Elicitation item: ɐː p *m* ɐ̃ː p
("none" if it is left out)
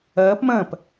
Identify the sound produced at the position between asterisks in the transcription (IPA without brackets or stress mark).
m